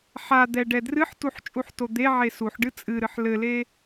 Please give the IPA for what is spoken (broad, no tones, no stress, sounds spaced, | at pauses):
ħ a d̪ ɛ ɖ ɛ d r ɨ ħ t u ħ t͡ʃʼ u ħ t o d̪ e ʕ e s u ħ ɖ ɨ t͡sʼ ɨ ɾ ɨ ħ l ɘ l e